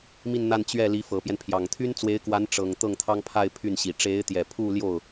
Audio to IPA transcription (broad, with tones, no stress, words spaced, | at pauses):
mi˥˧nn̪a˥˧n t͡ɕɥɛ˥˩ li˧˥ fɤ˨˩pjɛ˦npʰjɑ˨˩ŋ t̪ʰy˥nt͡swe˧˥ɪ̯kwa˧˥n ʈ͡ʂɤ˨˩ŋ t̪ɤ˥˩ŋt̪ʰɑ˥ŋpʰa˥˧ɪ̯ pʰy˥˩nɕi˨˩ ʈ͡ʂe˧˥ɪ̯t̪jɛ˨˩pʰu˥˧ljo˥˩ʊ̯